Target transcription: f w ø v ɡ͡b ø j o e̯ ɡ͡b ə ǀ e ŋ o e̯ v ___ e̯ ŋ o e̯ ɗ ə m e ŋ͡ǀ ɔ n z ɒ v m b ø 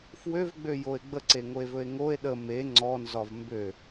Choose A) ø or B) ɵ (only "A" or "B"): B